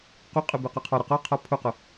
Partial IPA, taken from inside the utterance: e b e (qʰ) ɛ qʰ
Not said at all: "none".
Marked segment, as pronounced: q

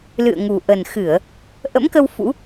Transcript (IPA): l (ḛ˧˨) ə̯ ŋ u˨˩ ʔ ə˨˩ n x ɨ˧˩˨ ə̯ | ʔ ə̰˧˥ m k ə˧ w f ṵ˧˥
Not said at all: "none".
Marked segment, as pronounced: ɨ̰˧˨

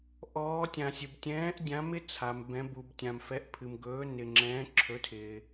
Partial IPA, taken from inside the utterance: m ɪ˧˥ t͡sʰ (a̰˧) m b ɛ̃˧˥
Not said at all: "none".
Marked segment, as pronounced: a˧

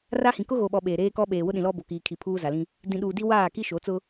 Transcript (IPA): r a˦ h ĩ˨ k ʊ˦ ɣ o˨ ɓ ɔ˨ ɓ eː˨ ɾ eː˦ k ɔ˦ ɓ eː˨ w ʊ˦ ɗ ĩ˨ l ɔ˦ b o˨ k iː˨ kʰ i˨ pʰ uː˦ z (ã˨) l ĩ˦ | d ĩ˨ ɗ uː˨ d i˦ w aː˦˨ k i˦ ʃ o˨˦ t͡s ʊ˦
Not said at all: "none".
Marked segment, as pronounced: a˨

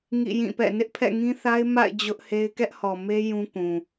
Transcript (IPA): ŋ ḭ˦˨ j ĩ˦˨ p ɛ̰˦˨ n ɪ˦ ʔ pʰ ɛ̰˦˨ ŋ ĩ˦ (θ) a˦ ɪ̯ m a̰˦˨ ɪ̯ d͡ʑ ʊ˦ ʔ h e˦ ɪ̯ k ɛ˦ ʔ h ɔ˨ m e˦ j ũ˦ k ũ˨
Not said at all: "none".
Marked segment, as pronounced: θ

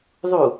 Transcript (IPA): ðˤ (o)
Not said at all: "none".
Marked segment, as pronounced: u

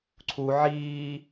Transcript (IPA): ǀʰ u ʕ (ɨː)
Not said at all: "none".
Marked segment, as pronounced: iː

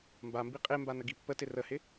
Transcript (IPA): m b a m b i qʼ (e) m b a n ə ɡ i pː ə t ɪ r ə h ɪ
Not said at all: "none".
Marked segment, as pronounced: e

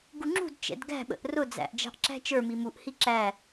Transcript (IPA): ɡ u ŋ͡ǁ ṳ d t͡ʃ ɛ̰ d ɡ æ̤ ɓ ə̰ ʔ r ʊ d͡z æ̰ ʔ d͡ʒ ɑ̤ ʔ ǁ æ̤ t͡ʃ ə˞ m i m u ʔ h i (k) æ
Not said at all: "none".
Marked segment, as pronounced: ǁ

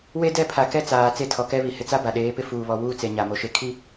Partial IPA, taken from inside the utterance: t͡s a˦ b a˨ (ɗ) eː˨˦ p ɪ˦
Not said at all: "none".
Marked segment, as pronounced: ɗ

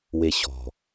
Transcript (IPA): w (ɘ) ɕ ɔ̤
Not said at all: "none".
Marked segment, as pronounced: e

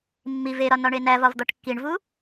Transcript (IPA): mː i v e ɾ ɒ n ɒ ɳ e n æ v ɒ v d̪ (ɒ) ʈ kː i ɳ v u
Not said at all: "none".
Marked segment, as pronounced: ɒ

